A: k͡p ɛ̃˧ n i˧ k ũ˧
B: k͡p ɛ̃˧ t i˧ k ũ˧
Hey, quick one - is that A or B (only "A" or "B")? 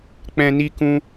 A